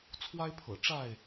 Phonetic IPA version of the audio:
t͡sʰwa˦ɪ̯pʰɤ̰˨˩ ʈ͡ʂa˥˨ɪ̯

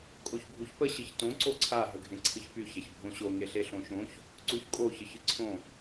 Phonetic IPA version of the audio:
kʼoçbʱuçpə ɕɨçtõ ǀoǀʰa ɦəɡʱẽǀʰɨçpy çaçbʱõɕo ŋeɬeɬõʃõç | ǀuçkʼo çəçɨǀʰõ

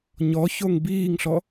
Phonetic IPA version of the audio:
ɲɔçoŋ biːŋɬɔ

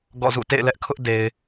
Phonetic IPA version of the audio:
ɡɔ̰˦˨zṵ˦˨ tḛ˦˨ɪ̯lɛ˦ʔkʰʊ˦ʔde˨ɪ̯

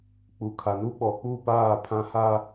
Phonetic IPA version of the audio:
k͡pu˨kʰa˨nu˦ ɓɔ˨k͡pu˦˨paː˦˨ pʰã˨ha˨

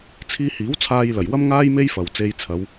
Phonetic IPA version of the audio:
t͡sʰiː˧hiː˨˥wt͡sʰaː˧jlɐ˨˩j wɐ˥mŋaː˥j me˥jfɐ˨w t͡se˧jt͡sʰɐ˨˧w

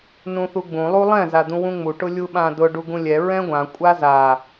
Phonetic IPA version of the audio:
nũθuɡ͡bũ lˠulˠɛ̃ zad̪ũwũŋ͡mu ʈʊlʲuɓãdʊ ɖuɡũlʲɛ ɹɛ̃ɡʷã kʷʼaza

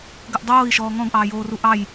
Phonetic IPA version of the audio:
ɡəʔdˤoːi̯ʃɔː ŋɔ̃ɡʔɑːjoːru ʔɑj

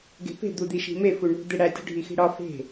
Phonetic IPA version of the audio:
ɡe̤pe̤ d̪ud̪iʃi̤me fuɳṳ d̪eɽæ tʲṳɖʱixi̤ɽɒ fe̤

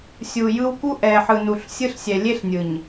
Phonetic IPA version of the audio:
sʲu˨jɯ˦w ku˦ʔɛ˨ħɯ˨ nu˨ɬsʲɯ˦ɬ sʲɛ˨lʲe˦ɬnʲɯ˨ɲ

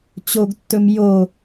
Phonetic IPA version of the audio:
t͡ɕoɡtːɵm jo

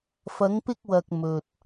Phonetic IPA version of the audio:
fɐ˨˧ŋpɪ˧k̚wɐ˨k̚ mɵ˨t̚

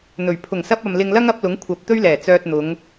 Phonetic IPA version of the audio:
n̪ɵ˨˩ɥ pʰʊ˨˩ŋsɐ˧p̚ɐ˨m lɪ˧ŋlɐ˥ŋɐ˨˥p̚lʊ˨˥ŋ kʷʰɐ˨p̚ t̪ɵ˥ɥlɛː˨˩ t͡sœː˧t̚n̪ʊ˨˧ŋ

